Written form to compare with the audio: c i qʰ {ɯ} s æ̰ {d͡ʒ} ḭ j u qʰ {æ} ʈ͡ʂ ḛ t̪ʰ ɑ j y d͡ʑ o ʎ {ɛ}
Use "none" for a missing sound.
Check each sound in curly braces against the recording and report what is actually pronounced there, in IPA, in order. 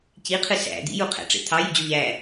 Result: ɯ, d̪, æ̰, æ

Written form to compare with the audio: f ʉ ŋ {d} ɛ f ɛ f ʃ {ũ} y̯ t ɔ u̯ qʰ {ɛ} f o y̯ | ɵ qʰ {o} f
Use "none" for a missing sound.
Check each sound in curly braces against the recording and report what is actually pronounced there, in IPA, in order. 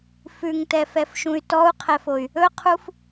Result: t, ũ, ɛ, u

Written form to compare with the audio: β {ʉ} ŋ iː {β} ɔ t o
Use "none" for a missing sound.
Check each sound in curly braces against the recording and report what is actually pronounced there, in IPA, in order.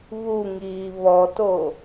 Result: u, β

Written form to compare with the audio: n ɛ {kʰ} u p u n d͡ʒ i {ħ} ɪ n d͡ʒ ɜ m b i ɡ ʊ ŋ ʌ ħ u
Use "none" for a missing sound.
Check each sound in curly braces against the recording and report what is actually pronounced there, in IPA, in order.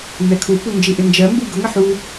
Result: kʰ, ʔ

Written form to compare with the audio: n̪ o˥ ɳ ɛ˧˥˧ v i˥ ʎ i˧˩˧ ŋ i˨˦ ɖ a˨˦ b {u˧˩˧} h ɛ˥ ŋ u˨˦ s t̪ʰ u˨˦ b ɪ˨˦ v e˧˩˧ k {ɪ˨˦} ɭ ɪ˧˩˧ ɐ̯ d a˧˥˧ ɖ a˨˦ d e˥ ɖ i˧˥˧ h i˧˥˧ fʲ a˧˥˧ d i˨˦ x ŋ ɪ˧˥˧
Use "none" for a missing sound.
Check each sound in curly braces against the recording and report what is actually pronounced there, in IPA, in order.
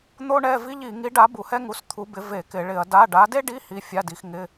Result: u˧˩˧, ɪ˧˩˧

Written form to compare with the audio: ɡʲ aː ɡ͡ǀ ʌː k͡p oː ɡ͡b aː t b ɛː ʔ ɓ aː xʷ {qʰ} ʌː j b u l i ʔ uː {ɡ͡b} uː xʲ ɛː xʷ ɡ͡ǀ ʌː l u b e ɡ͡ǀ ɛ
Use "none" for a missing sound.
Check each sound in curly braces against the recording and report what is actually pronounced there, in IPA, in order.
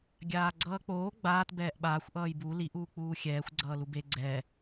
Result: ʔ, k͡p

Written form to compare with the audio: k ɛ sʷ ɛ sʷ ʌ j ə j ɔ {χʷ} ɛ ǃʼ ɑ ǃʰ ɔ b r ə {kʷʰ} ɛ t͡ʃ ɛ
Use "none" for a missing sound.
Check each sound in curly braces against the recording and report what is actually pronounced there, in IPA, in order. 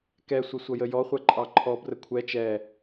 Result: χʷ, kʷʰ

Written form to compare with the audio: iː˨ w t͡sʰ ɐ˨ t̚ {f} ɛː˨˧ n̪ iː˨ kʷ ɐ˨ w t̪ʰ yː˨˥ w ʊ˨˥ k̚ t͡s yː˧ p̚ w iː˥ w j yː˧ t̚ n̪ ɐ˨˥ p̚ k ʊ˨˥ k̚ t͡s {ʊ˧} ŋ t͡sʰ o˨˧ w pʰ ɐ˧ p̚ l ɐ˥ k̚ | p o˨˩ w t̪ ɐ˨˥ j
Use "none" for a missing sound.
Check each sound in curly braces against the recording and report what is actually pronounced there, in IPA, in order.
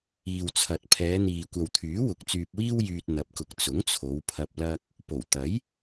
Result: pʰ, ʊ˨˥

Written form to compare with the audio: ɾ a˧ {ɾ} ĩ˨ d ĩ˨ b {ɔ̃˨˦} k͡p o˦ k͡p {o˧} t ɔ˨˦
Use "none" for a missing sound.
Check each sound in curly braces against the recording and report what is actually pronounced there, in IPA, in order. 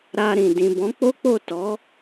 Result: ɾ, ɔ̃˨˦, o˦˨

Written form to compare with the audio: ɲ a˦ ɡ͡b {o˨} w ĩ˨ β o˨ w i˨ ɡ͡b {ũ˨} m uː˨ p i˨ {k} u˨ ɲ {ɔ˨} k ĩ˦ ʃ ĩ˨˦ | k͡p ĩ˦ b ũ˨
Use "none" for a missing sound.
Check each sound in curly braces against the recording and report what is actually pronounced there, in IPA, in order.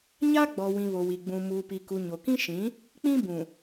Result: ɔ˨, ũ˨, k, o˨

